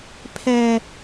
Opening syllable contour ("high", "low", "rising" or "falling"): high